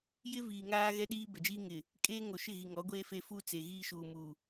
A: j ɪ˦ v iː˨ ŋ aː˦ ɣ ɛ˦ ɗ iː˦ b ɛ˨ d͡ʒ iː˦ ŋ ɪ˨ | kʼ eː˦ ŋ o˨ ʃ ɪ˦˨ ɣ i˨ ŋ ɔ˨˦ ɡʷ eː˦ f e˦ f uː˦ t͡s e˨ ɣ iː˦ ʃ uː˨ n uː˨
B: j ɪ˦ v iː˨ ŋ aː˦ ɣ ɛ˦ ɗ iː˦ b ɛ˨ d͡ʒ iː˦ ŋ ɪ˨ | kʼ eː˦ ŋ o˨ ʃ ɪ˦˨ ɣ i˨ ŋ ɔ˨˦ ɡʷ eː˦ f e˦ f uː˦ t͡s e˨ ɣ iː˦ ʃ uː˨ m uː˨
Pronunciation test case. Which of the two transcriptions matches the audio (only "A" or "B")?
B